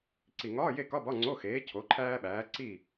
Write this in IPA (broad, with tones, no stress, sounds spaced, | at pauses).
ǀ i˨˩ ŋ ɒː˧˥˧ j e˥˨ k ɒ˧˥˧ b ɒ˧˥˧ ŋ͡ǀ o˧˥˧ x eː˨˥ cʰ o˨˥ ǃʰ æː˥ ɓ æː˨˥ ǀ i˥˨